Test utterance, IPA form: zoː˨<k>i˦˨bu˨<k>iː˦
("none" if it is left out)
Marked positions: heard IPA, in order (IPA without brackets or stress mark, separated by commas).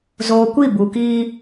kʷ, k